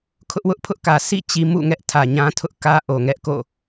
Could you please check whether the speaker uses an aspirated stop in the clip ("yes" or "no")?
yes